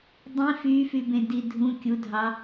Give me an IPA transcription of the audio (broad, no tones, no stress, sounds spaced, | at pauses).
dˤ ĩ f y f y b ẽ d i dʱ ũ kʲ u dʱ ɑ